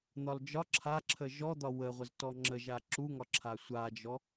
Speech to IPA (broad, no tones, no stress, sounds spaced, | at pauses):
n̪ ɒ l d͡ʒ ɒ ǁʰ a ǁʰ ə ʒ ɔ d̪ ɒ w ə ʁʷ ə z t ɔ ŋ͡ǁ ə ʒ a ǁ u ŋ ɒ ǁʰ a sʷ a d͡ʒ ɔ